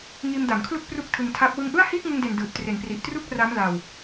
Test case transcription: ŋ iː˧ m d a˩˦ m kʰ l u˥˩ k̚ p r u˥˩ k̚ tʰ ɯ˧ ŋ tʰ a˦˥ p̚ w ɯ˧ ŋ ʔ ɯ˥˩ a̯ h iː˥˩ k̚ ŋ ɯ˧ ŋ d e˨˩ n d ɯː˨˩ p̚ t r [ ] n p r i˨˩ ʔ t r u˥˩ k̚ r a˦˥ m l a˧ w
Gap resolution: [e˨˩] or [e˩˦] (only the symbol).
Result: e˩˦